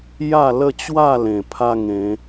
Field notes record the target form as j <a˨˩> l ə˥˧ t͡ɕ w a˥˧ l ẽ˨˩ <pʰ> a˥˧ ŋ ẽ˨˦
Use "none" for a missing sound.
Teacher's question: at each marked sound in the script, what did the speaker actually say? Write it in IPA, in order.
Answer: a˥˧, pʰ

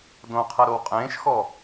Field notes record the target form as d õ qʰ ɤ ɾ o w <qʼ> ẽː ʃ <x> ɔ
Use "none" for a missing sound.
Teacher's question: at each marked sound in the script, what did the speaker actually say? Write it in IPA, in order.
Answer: qʼ, x

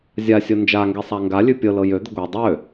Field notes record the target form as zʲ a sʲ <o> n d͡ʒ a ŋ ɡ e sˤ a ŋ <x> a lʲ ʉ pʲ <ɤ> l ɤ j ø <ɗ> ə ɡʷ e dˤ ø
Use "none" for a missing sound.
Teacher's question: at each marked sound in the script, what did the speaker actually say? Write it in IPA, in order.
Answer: o, ɡ, ɤ, d̪

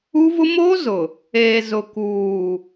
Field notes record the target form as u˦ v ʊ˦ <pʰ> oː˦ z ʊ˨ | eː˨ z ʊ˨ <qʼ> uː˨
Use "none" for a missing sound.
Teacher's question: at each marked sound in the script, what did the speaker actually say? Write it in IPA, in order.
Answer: m, k

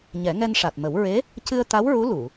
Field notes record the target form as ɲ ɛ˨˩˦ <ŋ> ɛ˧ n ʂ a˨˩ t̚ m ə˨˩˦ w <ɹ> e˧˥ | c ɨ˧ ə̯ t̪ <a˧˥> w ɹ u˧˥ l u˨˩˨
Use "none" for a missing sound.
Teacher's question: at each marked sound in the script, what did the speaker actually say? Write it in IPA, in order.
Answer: ŋ, ɹ, a˧˥

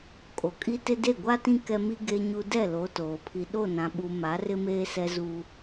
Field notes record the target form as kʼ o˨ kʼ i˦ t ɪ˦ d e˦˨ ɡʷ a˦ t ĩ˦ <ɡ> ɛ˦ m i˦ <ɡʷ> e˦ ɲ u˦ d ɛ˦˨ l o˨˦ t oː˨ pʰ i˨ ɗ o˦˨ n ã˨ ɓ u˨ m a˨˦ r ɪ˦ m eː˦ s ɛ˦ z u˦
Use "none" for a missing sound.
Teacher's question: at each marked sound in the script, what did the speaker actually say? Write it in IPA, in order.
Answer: k, ɡ

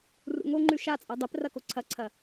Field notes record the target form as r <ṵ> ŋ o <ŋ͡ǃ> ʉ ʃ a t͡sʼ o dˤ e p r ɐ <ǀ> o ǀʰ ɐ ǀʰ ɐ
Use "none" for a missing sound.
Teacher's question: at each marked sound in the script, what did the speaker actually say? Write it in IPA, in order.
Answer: ṵ, ŋ͡ǃ, k

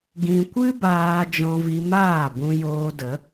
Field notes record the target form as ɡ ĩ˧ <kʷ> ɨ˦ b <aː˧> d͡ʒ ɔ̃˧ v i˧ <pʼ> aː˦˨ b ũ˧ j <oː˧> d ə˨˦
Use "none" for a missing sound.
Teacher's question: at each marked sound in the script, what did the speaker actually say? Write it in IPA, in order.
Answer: kʷ, aː˧, m, oː˧

